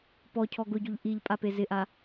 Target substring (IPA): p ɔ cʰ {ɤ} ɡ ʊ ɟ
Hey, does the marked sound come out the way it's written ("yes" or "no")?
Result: no